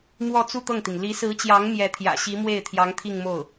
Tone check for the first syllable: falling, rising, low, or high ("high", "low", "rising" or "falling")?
falling